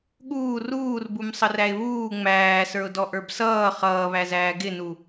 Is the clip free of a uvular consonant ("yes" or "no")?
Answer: no